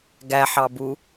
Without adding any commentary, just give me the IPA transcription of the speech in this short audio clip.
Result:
ɡ æ ħ ɑ b u

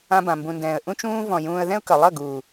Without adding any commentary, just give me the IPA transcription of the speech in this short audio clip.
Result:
ã˧ b ã˨ m b ũ˨ n d ɛ̃ː˨ ə̯ ʔ ũ˧ t͡ʃ ũː˧ v ɔ̃˨ j ũː˧ ə̯ ð ɛ̃˦ ʊ̯ k ʌ˨ lˠ ʌ˦˨ ɡ uː˨

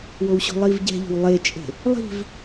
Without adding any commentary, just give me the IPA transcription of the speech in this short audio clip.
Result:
w o w ɕ o̤ lˠ i v ɟ ɛ̤ ʎ o̤ w lˠ e t͡ʃʼ e̤ | lˠ i̤ v

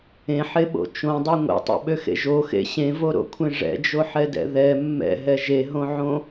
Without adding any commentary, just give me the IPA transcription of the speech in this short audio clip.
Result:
ẽ ħ e ɓ o̰ t͡ʃ õ dˤ ø ŋʷ ḛ tˤ ḛ ɓ ø x ḛ ʒ o x ḛ ɕ ẽ v o ɾ o̰ kʷʰ ẽ ʐ ɛ̰ d͡ʒ o ħ ɛ d ɛ̰ ð ɛ mː ɛ̰ ɦ ɛ ʒ e ɦ õ ʕ õ

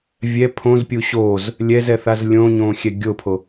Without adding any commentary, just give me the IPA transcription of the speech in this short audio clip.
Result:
vʲ ɛ pʰ õ z pʲ u ɕ o z | lʲ ɛ z ɛ θ a z lʲ õ ɲ õ xʲ ɛ ɡʲ o pʰ o

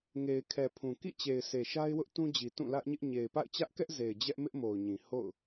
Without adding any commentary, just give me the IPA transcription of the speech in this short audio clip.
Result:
ŋ e˨ ɪ̯ kʰ ɛ˨ pʰ ũ˨ k ḭ˦˨ t͡ɕ e˨ ɪ̯ sʰ e˨ ʃ a˦ ɪ̯ w ʊ˦ ʔ t ũ˦ d͡ʑ i˨ t ũ˦˨ l ä˦ ʔ ɲ ɪ˦ ʔ ɲ e˨ ɪ̯ p a̰˦˨ ɪ̯ t͡ɕ ä˦ ʔ k ɛ˦ ʔ z e˨ ɪ̯ d͡ʑ ɛ˦ ʔ m ɪ˦ ʔ m o˨ ʊ̯ ɲ ĩ˨ h o̰˦˨ ʊ̯

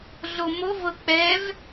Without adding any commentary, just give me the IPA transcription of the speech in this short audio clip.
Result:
ɮ o m o v ɤ k͡p ɛ v

